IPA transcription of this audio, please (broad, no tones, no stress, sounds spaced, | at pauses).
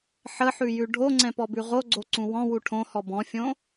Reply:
ħ ə ħ ʉ j ʉ ɖʱ o ŋ͡ǀ ɛ̃ p ɔ b ʉ ʁ o ɡ͡ǀ o ǀ ũ w ɔ̃ w u ʈʰ õ h ɔ b ɔ̃ fʲ õ